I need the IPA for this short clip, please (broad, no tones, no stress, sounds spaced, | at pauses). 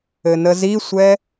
ɘ n ə z i sʷ ɛ